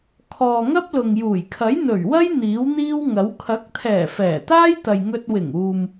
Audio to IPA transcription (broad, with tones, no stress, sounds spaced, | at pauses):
kʰ ɔː˨ ŋ ɐ˥ p̚ l ʊ˨ ŋ j uː˨˩ j kʰ ɐ˨˥ j n̪ ɵ˨˩ ɥ w ɐ˥ j n̪ iː˨˥ w n̪ iː˥ w ŋ ɐ˨˥ w kʰ ɐ˨˥ k̚ t̪ʰ ɛː˨˩ f ɛː˨˩ t̪ aː˥ j t̪ ɐ˨ j ŋ ɵ˧ t̚ w ɪ˨˩ ŋ uː˨ m